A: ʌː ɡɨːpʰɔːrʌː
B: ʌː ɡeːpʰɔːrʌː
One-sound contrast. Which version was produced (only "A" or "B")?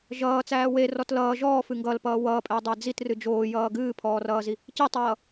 A